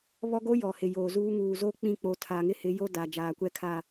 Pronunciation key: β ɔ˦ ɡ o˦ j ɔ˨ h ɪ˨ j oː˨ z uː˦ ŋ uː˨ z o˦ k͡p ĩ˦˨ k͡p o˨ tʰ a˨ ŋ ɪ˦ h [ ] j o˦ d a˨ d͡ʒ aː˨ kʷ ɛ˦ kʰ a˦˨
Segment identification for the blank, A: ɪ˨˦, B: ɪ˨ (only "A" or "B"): A